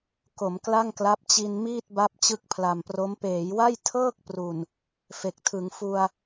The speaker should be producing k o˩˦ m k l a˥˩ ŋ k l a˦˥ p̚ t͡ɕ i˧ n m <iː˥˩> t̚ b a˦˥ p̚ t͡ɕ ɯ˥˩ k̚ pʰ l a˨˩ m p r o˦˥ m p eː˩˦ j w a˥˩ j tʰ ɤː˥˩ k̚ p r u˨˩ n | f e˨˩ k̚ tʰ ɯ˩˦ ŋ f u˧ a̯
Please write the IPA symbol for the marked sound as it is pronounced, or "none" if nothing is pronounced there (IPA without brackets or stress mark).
iː˥˩